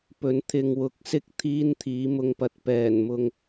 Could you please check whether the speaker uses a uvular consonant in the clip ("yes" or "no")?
no